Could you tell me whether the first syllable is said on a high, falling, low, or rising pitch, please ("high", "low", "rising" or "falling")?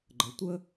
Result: rising